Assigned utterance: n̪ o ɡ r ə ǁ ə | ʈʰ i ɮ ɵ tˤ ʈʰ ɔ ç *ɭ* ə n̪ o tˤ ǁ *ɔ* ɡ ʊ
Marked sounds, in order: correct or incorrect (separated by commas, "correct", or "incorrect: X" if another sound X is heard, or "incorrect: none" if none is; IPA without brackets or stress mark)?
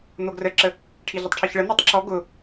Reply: correct, correct